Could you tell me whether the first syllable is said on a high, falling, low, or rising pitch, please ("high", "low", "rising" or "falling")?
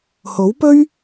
rising